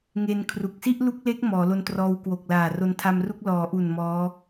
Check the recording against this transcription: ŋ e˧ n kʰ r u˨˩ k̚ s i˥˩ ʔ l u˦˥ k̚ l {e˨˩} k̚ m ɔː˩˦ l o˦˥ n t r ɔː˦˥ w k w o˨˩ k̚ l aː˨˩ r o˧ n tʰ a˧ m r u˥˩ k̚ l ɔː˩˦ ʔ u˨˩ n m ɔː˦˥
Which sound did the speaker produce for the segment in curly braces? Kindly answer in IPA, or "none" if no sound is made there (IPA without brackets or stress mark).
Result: e˦˥